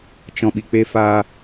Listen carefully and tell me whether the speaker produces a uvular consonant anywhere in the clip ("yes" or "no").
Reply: no